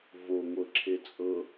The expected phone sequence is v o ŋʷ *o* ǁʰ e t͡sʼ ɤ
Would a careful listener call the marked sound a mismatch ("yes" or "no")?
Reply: yes